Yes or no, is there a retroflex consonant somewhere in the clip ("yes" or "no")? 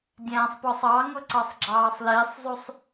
no